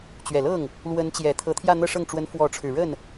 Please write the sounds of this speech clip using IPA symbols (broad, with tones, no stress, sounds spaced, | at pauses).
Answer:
t͡ɕ ɥ ɛ˨˩ l ɤ˥˩ ŋ | l w ə˧˥ n t͡ɕ j ɛ˨˩ t̪ʰ ɤ˧˥ t̪ʰ j ä˥˧ n̪ ɤ˥˧ ʂ ɤ˥˩ ŋ ʈ͡ʂ w ə˧˥ n f w ɔ˧˥ ʈ͡ʂʰ ɻ̩˨˩ ɻ ə˥˩ n